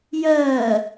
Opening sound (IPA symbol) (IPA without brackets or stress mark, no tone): j